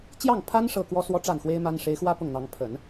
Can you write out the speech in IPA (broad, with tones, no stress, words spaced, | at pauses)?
t͡ɕjɑ˥˩ŋpʰa˥n ʂɤ˥˩kwɔ˥ swɔ˥ʈ͡ʂa˥˩nxwe˥ɪ̯ ma˥n ʂe˧˥ɪ̯xwä˥ pʊ˥˩ŋn̪ɑ˧˥ŋ pʰə˨˩˦n